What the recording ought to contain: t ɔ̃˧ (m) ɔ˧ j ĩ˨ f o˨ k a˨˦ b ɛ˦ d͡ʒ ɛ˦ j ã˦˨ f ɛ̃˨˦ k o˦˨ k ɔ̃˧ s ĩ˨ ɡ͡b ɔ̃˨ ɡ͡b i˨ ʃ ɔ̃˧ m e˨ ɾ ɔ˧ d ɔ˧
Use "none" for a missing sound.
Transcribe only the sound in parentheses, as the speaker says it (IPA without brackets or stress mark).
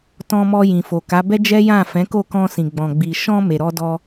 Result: m